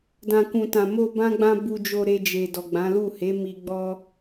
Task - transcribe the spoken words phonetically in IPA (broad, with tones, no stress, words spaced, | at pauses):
dã˨kũ˨tã˨ mo˧ bã˦ɡ͡bã˦ bu˧d͡ʒo˧ ɾe˧d͡ʒe˨ dɔ˨ɡ͡bã˨˦lu˦˨ he˨˦ mi˧ɡ͡bɔ˦